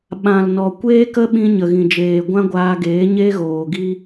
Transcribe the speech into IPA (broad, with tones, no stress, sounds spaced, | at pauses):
ɓ ã˨ l n ɔ˨ kʷ eː˦ k ə˦ ɓ ĩ˧ ɲ ə˨ ɣ ĩ˨ d͡ʒ eː˨ ɡʷ ã˦ ɡʷ aː˧ ɡ eː˨˦ ɲ eː˦ ɣ oː˨ ɡ i˦